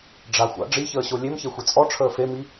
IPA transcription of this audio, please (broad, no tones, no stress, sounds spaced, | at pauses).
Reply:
ɖ͡ʐ a xʷ a̰ ɖ͡ʐ i ç əː ɕ o lʲ e m ç e xʷ i t͡sʼ ɔ ʈ͡ʂʰ əː f e m i